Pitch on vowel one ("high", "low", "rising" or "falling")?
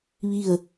falling